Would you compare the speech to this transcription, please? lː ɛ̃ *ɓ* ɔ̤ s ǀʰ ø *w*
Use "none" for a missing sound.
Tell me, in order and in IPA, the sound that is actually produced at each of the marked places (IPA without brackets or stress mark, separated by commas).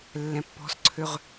pː, ʁ